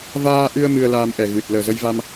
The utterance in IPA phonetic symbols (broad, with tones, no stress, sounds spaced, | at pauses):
v aː˧ ʔ ɨ˧ ə̯ m ɨ˧ ə̯ l aː˧ m ʔ ɛ˨˩ ɣ ɨ˨˩ t̚ l əː˨˩ z ə˧ j v a˧ m